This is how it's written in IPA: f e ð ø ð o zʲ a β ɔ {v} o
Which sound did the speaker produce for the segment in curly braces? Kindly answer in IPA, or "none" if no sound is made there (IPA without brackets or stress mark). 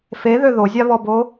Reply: b